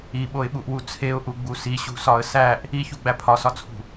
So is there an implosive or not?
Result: yes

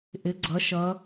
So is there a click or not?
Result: yes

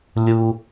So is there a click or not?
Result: no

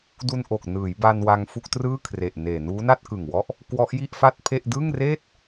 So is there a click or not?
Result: no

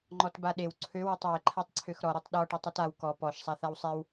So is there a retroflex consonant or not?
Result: yes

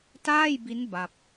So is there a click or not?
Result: no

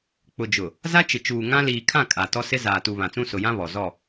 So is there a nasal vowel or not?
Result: yes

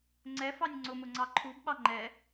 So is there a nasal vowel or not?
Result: no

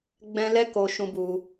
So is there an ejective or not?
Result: no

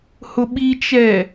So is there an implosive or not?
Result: yes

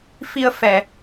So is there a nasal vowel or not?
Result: no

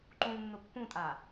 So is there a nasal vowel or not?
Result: yes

